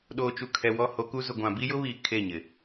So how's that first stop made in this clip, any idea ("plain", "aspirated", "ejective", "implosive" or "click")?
implosive